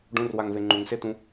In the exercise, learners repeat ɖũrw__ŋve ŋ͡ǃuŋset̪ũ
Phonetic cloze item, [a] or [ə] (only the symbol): a